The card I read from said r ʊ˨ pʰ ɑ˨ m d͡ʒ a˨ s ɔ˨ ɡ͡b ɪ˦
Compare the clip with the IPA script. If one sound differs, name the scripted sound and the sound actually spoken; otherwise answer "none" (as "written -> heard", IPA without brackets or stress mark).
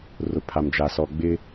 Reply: ɑ˨ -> a˨